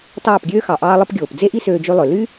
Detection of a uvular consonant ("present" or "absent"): absent